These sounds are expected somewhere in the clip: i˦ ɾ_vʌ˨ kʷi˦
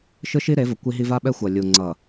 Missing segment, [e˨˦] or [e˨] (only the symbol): e˨˦